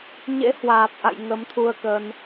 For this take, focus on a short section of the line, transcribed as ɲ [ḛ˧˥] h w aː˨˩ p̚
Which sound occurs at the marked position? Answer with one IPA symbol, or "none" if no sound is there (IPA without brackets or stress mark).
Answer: ḛ˧˥